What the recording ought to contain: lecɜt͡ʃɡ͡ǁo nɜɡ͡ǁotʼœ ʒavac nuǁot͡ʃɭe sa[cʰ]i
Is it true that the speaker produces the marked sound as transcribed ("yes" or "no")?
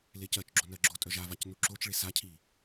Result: yes